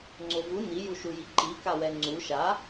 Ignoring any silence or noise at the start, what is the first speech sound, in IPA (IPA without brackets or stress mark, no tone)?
ŋ͡ǀ